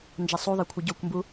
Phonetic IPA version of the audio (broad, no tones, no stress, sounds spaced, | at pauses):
n d͡ʒ a sˤ u ðˤ a kʷʰ ɯ ɟ o kʷ m b u